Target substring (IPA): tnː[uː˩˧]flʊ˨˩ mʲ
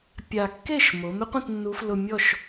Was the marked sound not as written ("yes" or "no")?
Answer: yes